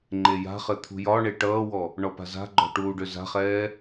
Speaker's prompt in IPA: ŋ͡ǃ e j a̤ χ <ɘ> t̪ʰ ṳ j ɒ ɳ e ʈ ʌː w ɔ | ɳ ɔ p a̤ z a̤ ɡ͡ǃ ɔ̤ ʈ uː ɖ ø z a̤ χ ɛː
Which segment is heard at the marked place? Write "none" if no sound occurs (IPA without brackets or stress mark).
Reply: ɘ